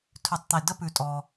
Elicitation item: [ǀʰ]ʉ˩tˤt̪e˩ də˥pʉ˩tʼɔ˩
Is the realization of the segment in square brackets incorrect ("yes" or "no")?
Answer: yes